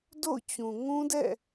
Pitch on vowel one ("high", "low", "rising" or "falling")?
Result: falling